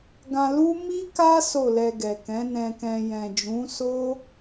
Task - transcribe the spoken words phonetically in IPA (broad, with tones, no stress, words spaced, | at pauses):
ɡã˧lu˦ mi˦ka˦ so˦˨lɛ˧ɡɛ˨ kɛ̃˨˦ nɛ̃˧kɛ̃˧ jɛ̃˨d͡ʒũ˨˦so˦